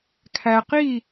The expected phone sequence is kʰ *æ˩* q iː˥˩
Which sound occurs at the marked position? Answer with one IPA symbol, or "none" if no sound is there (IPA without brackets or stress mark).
æ˩